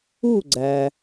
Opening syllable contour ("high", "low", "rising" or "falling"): falling